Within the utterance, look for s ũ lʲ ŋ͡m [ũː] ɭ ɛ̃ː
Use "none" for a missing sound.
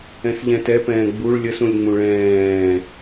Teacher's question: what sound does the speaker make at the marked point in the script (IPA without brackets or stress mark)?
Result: ũ